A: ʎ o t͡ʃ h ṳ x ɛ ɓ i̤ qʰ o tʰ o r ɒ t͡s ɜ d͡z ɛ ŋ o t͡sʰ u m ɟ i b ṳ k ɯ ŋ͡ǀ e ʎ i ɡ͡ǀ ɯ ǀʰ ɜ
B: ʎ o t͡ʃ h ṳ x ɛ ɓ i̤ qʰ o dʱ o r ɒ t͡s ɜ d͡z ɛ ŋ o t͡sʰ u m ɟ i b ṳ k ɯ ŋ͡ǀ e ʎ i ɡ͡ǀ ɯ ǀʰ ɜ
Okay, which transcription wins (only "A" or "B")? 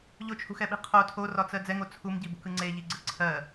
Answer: A